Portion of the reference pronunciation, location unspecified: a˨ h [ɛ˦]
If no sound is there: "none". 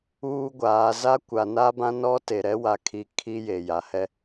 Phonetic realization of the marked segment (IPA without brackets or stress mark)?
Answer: ɛ˦